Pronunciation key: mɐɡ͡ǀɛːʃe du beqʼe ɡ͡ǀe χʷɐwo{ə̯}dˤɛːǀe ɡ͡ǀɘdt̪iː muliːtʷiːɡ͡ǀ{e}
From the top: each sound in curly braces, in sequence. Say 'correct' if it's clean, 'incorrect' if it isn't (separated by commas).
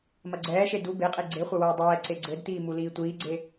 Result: correct, correct